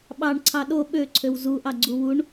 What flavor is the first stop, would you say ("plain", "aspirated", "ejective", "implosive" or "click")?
implosive